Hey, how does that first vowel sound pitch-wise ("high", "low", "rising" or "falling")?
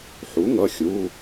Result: rising